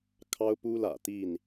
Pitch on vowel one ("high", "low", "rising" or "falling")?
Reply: high